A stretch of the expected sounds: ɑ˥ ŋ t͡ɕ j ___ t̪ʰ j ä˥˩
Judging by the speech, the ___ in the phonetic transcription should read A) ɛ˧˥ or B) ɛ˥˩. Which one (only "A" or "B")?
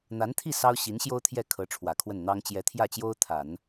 A